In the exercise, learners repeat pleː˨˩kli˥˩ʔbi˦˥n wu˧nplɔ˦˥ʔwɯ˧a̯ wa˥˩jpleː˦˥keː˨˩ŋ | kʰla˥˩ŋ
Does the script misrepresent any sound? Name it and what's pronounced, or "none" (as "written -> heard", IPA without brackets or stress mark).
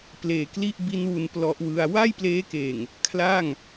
none